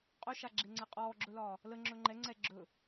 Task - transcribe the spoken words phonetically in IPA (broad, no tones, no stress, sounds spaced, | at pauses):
qʼ ɵ ʃ a ɡ͡ǁ e ŋ͡ǀ ɛ qʼ ɔː ɡ͡ǁ ɵ l ɒː | l ə ŋ͡ǁ ɵ ŋ͡ǃ ɛ ŋ͡ǀ ɛ ɡ͡ǁ ɵ